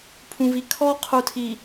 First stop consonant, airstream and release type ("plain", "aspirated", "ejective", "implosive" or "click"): aspirated